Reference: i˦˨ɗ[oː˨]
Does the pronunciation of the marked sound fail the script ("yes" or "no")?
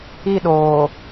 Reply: no